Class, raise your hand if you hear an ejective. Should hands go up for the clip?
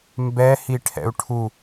no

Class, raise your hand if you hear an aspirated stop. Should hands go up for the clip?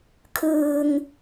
yes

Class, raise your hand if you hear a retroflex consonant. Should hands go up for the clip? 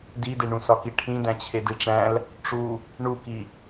yes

